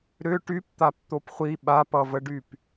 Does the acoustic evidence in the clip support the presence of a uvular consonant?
yes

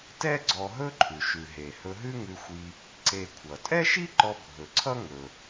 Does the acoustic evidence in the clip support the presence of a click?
yes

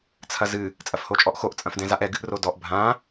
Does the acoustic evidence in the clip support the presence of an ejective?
yes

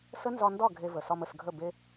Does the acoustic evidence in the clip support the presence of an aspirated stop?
no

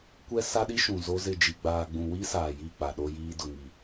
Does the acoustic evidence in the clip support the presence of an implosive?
yes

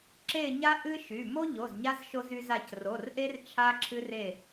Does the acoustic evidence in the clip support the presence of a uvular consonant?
no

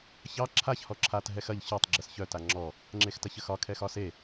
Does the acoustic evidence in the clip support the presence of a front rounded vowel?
yes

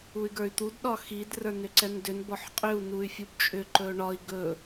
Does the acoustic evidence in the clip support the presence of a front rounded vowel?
yes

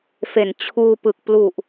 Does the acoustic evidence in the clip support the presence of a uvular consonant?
no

